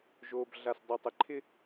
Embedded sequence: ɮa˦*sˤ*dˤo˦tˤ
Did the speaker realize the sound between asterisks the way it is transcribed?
no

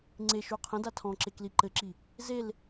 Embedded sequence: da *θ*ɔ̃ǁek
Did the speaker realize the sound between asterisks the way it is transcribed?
no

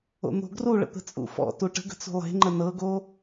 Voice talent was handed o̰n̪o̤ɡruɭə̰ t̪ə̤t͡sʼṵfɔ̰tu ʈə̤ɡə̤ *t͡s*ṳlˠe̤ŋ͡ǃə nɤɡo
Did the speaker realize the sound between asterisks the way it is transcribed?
yes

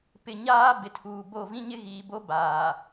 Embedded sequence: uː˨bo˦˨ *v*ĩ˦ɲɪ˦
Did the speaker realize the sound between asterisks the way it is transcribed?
yes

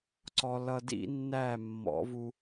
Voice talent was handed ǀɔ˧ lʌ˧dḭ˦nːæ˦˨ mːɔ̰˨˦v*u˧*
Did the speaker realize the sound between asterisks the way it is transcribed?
yes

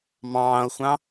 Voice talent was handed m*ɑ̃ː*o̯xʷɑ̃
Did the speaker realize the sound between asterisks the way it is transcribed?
yes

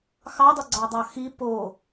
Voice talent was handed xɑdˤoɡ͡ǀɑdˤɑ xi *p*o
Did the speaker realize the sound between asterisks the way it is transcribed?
yes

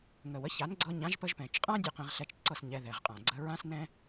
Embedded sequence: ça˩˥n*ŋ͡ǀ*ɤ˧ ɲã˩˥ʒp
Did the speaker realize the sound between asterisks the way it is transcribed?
no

